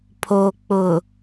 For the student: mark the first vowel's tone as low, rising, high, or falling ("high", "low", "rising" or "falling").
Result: low